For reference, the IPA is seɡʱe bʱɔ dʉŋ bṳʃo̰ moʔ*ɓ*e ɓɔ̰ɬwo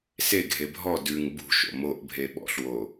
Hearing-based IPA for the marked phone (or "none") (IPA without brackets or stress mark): bʱ